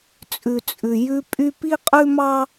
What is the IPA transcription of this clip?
t͡sʼʉ˧t͡sʼʉ˧ jʉ˥pʼy˥ pi˥qʼʉ˥mɑ˥

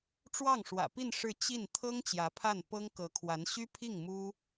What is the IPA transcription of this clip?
ʈ͡ʂwɑ˥˩ŋʂwä̰˨˩pi˥˧n ʂɻ̩˥˧t͡ɕi˥˩n t̪ʰɤ˥ŋ t͡ɕjä˧˥pʰa˥˩npɤ˥ŋ kɤ˧˥kʰwa˧˥n ɕy˥pʰi˥˩ŋ mu˥

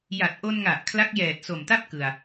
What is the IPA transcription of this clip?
ja˨˩t̚ʔo˧nŋa˨˩ʔ kʰla˦˥k̚jɛː˨˩t̚so˨˩mta˥˩p̚ kɯ˧a̯

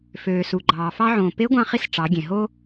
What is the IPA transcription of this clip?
føː˩su˩ɡ͡ǃɑː˩ fɑ˧ʕõː˩ pe˧˥ɡʷɑ̃˧χi˧s ʈ͡ʂɑ˩˧ɡʲẽ˩ɦo˥

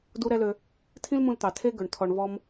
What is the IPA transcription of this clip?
du˦ɾɛ˦lø˧ | tʰĩ˦lmũ˧lt̪ɑ˨ tʰe˦ɡɵ˨ɳ tʰɔ˧ɳvɔ˦m

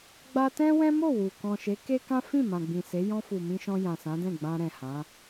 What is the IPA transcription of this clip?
ɡ͡ba˧tɛ̃˦ wɛ̃˦mo˦˨ wu˨ kɔ̃˨ʃe˨˦ke˦kã˦ fĩ˦˨mã˨ ɡ͡bĩ˨se˨˦ jɔ̃˧fu˨ mĩ˧ʃɔ̃˧ jã˨sã˨˦dɛ̃˦˨ ɡ͡bã˧ɾɛ̃˨ hã˨˦

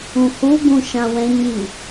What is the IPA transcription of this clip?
ũhu ɡũʃãwɛ̃ ɲi

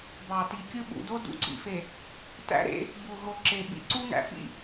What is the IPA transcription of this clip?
bɑ˨ti˨kʲɯ˦ ɓṵ˨do˦ dṵ˦ǀḭ˨fe˨ | tæ̰˦ɾḛ˦ | bu˨ɦo˨ ǁe˨ ɓḭ˨ǀu˦ ŋæ̰˨fḭ˦

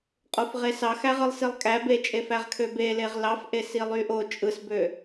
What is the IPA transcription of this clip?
qʼofʁesɑxæʁ ɯlˠsilˠkʼæ bet͡ʃʼefæʁkʰø beleʁ lɑfʔe silˠyʔo t͡ʃʼɯsbø

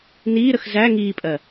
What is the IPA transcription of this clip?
niːɾəx zæ ŋiːpʼɜ

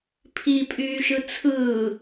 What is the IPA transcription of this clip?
pʰipʼyː ʃɯt͡sʰɯː

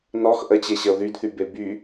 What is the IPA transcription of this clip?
nɔx ʔət͡ɕeɕəo̯ ðydθybe by

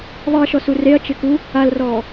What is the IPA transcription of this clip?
ðˤiɐ̯ʃɔsu reɐ̯t͡ʃɪku | alrɔː

